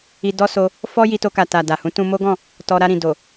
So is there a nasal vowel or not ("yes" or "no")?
yes